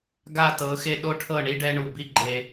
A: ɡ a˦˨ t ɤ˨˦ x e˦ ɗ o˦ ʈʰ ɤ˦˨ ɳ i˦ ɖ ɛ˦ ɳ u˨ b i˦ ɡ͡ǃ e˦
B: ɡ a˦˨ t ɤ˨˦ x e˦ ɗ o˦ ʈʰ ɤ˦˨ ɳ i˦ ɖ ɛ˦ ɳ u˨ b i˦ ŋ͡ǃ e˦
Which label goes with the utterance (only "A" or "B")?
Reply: A